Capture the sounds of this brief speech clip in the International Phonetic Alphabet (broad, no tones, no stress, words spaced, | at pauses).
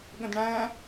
ɠə̃dɳæ̃